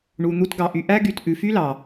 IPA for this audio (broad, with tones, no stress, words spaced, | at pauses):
ɳu˨n̪u˧tɡɑ˨ʔy˨ ʔæ˦ɡy˨tʔʉ˨fy˦ lɑ˨